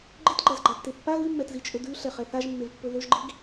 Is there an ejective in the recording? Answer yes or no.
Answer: yes